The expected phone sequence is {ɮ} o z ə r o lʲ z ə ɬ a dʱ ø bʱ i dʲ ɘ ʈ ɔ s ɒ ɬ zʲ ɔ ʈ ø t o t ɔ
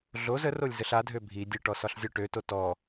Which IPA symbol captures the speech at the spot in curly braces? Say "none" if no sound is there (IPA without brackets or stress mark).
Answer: ɮ